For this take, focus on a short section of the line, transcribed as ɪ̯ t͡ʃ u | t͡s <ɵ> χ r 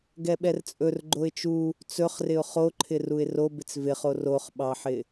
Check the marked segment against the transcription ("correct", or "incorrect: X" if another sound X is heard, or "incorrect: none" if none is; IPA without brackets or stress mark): correct